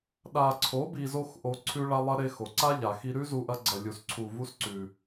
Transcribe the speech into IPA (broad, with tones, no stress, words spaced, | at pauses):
ɗa˧ ǀʰo˨˦ bi˧zo˦xʔo˧ ǀʰʉ˦ɭa˦ lˠɐ˦ ɾe˧xo˨ǀa˦ ʎa˨xi˧ɾʉ˦zu˧ ʔɐ˦ɡ͡ǀɐ˧lʲu˧s ǀʰu˧vu˦s ǀʉ˧